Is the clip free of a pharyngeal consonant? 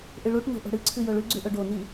yes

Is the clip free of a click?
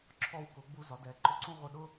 no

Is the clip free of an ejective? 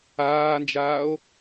yes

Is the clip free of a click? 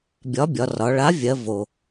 yes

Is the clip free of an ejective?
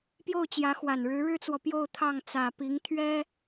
yes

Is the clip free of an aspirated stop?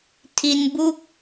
no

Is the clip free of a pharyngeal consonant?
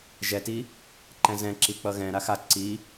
yes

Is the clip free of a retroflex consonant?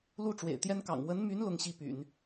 no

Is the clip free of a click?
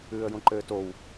no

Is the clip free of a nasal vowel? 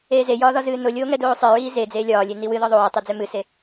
yes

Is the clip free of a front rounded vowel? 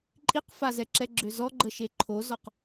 no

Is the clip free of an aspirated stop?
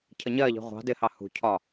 no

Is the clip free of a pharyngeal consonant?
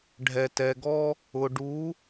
yes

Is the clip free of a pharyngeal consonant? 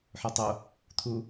no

